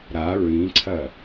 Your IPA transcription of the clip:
ɾ a ɹ ĩ ǀʰ ɐ

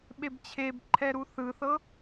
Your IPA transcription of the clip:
ɓ e b t͡ɕʰ e b ǃʰ ɛ ɾ u θ ɯ θ ɤ

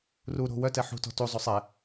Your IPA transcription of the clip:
r u ɾ o̤ w œ t ɛ ħ ṳ t ɔ̤ t u zˤ o sˤ ɛ

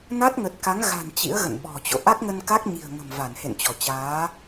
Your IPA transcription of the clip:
n a˦˥ t̚ ŋ ə˨˩ t̚ k a˨˦ ŋ ɣ a̤˨˩ n t͡ɕ ḭ˧˥ ə̯ ɣ ə̰˧˨ n ɓ ɔ̤˨˩ t͡ɕ o̰˧˨ ʔ a˦˥ k̚ ŋ ə˧ n k a˦˥ k̚ ɲ i̤˨˩ ə̯ ŋ ə̤˨˩ m v a˧˩ n h ḛ˧˨ n t͡ɕ ɔ˧˩ t͡ɕ aː˨˦

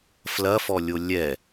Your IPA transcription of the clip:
f l ɐ f ɔ lʲ o lʲ ɛ

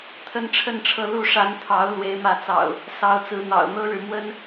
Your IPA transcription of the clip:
t̪ʰ ə˦ n ʈ͡ʂʰ ə˥˨ n ʈ͡ʂʰ ɤ˥˨ l u˥˨ ʂ a˨˦ n t̪ʰ ɑ˨˦ ʊ̯ l w e˨˦ ɪ̯ m ä˨˦ t͡s ɑ̰˨˩ ʊ̯ | s ɑ˨˦ ʊ̯ t͡s ɹ̩˨˦ n̪ ɑ̰˨˩ ʊ̯ n̪ ɤ˦ ɻ ɻ̩˨ m w ə˦ n

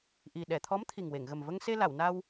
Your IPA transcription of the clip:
ʔ i˨˩ ɗ ɛ˨˩˨ t̪ʰ ɔ˧˥ m t̪ʰ i˨˩ ŋ w e˨˩˨ ŋ ɣ ə˨˩ m v ə˧ ŋ s e˧ l a˨˩˨ w n a˧ w

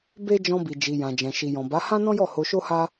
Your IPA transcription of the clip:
b e˦ d͡ʒ ɔ̃˧ b i˨ d͡ʒ i˨ j ã˨ d͡ʒ ɛ̃˨ ʃ i˨ j ɔ̃˨ b a˨˦ h ã˦ n ɔ̃˦ j ɔ˦˨ h o˧ ʃ o˦ h a˦

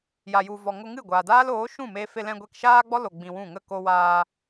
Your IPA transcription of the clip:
j a˧ j u˧ v ɔ˨ ŋ o˧ ŋ ɨ˦˨ ɡʷ aː˨ d aː˦ l oː˨˦ ʃ ũ˦˨ m eː˧ f e˧ l ɛ̃˧ ɡʷ ɛ˧ k ʃ aː˦ ɡ͡b ɔ˦ l o˧ ɡ͡b ĩ˧ w ũ˦˨ ŋ ə˦˨ k o˧ w aː˧

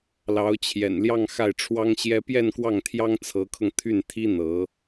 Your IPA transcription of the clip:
l ɑ˧˥ ʊ̯ t͡ɕʰ j ɛ̰˨˩ n l j ɑ˥˧ ŋ x a˥˩ ɪ̯ ʈ͡ʂʰ w ɑ˥ ŋ ɕ j ɛ˥ p j ɛ˥˧ n k w ɑ˥˩ ŋ t̪ʰ j ɑ˥ ŋ t͡sʰ ɤ˧˥ kʰ ɤ˧ ŋ t̪ʰ y˥˩ n t̪ʰ i˥ n̪ ɤ˧˥

